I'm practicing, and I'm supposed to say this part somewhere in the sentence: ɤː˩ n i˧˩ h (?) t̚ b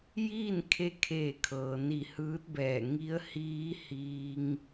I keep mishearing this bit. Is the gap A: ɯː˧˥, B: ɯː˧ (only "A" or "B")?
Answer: A